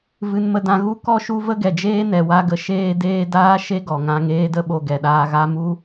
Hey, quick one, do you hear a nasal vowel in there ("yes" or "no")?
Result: yes